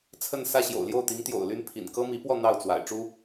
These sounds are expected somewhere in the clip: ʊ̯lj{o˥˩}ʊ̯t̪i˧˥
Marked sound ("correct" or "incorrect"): correct